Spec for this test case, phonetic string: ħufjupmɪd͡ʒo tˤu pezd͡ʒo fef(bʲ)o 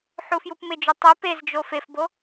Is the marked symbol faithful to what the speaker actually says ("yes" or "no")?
no